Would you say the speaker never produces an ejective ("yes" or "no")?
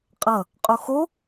no